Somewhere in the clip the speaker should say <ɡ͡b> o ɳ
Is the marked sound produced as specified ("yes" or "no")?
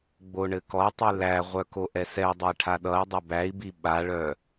yes